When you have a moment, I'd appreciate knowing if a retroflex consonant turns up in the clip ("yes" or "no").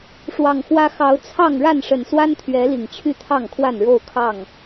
yes